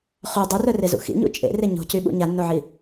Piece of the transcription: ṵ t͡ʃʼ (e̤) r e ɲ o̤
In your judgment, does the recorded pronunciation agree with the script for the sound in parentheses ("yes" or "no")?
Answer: no